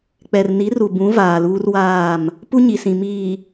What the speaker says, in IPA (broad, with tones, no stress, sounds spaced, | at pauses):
k͡p ɛ˨ r n i˨˦ r u˨ b ũ˨˦ v aː˨ l uː˦ r w aː˦˨ m | p u˦ ɲ i˨ s ĩ˨ m iː˨